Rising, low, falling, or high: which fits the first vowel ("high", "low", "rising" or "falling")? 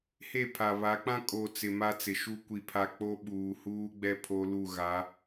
falling